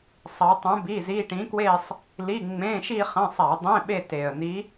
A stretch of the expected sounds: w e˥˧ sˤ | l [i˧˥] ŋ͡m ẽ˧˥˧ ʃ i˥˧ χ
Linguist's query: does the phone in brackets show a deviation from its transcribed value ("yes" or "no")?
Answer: yes